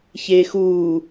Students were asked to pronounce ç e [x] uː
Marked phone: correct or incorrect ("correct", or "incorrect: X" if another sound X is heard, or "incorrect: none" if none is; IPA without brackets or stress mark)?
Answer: correct